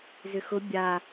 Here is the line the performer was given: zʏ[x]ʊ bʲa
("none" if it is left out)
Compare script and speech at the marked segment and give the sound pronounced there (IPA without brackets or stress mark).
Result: x